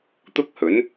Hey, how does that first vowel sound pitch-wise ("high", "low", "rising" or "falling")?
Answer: high